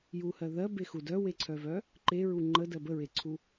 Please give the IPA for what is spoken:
j u h ɜ ð ɜ b e x u d œ w e ǀʰ œ v œ | ǃ e ɹ u ŋ͡ǃ ə d ɜ b ə ɹ e ǀʰ u

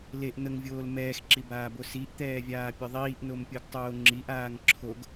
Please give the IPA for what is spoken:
l e ʔ n̪ ə ŋ vʲ oː l m ɛː x ǁ i b aː b o s i ʔ t̪ ɛː vʲ aː pʲ œ ðˤ iː ʔ n o m pʲ o ɡ tˤ oː ŋ͡ǁ i ʔ aː ŋ ǁʰ o ɡ

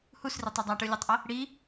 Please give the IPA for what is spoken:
h u s r i tˤ ʌ dˤ a ʈ ɯ lʲ ɛ tˤ ʔ ʌ | ɽ i

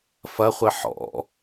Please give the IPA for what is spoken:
f ɐ χʷ ɘ ħ ɔ̰

